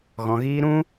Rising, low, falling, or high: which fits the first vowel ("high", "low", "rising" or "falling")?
low